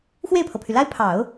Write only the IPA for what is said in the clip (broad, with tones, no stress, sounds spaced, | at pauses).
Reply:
x w e˥˩ ɪ̯ pʰ ɤ˩ pʰ y˩ l a˥ ɪ̯ pʰ ɑ˨˩˦ ʊ̯